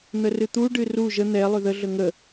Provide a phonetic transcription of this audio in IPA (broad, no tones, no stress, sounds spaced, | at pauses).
n̪ ə r ɨ t̪ u ɖ ɨ r u ʒ ə n̪ ɛ lˠ ʏ ð ə ɮ ə ŋ ə